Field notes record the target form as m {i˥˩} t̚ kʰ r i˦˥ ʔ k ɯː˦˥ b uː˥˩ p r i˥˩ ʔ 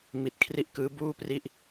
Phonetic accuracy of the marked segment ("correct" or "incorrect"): incorrect